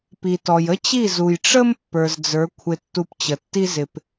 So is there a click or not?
no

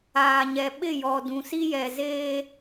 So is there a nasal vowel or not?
yes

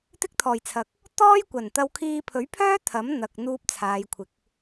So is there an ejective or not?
no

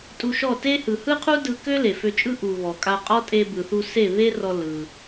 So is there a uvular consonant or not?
yes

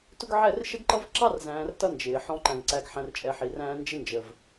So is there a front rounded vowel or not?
no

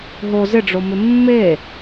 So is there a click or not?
no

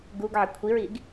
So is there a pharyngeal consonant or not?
yes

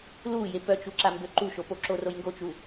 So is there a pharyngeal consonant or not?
no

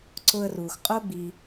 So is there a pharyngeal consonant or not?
no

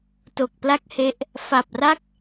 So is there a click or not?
no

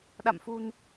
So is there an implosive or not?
yes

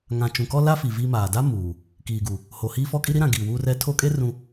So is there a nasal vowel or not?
yes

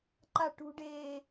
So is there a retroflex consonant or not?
yes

